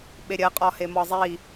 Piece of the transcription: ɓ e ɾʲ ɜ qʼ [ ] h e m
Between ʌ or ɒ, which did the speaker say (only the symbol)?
ɒ